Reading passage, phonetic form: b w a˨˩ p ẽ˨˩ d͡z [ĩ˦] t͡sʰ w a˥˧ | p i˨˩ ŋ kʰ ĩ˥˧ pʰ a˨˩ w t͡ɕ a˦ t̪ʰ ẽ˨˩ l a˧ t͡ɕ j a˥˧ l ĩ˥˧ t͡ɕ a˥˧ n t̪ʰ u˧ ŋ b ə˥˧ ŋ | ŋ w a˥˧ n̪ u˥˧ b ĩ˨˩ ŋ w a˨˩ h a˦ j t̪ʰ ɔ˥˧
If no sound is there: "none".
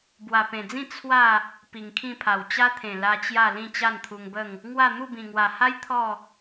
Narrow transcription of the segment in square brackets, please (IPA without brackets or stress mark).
ĩ˥˧